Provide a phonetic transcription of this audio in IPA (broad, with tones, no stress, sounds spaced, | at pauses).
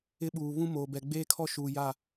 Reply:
ɪ˦ ɓ uː˨ β ũ˦ m oː˨ b ɛ˨ ɡ͡b eː˦ kʰ ɔ˦ ʃ uː˨ j a˦˨